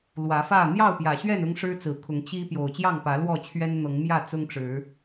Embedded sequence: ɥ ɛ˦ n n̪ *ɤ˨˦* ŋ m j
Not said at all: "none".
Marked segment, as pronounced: ɤ˨˦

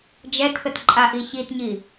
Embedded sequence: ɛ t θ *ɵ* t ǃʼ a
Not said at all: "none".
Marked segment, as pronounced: ə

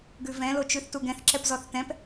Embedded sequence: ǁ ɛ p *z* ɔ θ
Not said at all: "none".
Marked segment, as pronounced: z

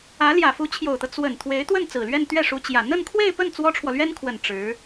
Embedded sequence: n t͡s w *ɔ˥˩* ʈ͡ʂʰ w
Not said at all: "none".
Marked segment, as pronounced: ɔ˥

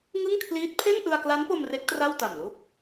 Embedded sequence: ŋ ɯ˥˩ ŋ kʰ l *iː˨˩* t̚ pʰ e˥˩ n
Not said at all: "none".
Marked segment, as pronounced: iː˦˥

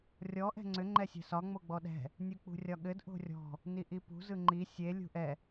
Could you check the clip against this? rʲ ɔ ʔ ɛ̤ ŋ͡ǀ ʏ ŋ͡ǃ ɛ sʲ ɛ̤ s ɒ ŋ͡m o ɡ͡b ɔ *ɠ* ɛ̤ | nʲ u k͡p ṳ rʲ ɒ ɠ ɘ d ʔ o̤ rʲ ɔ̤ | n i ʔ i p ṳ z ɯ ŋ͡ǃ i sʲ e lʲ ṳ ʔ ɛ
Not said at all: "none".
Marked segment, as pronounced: ɗ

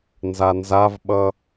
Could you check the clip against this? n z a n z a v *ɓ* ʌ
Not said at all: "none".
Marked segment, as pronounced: ɓ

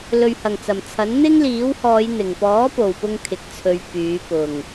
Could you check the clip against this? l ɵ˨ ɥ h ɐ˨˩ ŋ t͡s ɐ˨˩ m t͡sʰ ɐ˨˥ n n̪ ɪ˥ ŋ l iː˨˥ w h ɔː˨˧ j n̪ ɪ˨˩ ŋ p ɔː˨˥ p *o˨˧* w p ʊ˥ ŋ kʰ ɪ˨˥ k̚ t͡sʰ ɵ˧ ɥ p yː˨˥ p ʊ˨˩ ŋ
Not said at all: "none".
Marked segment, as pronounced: o˨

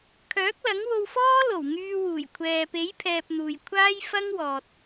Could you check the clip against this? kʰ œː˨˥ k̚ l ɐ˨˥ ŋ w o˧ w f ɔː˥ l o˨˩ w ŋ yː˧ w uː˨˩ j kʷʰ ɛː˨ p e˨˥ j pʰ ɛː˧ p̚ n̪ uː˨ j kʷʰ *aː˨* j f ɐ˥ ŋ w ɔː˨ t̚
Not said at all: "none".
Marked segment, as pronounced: aː˥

